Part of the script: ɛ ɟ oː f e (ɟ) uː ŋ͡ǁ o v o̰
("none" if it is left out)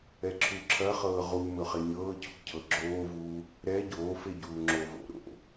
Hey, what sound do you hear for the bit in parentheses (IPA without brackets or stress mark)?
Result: ɟ